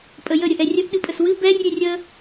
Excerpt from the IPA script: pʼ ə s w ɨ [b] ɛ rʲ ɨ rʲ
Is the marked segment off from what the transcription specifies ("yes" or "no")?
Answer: no